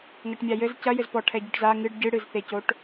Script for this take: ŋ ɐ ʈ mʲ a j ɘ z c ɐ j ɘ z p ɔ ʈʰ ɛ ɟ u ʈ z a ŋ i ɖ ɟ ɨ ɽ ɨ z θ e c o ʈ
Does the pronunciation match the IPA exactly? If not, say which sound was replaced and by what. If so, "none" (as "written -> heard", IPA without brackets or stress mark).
i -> ɨ